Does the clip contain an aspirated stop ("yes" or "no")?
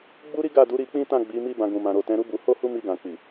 no